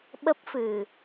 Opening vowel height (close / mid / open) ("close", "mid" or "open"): mid